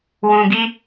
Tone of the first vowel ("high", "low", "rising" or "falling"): low